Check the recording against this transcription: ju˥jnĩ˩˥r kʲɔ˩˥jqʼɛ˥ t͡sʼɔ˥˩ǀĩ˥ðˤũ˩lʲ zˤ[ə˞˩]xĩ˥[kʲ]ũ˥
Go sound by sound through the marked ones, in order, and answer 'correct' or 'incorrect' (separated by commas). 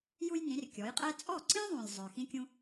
correct, correct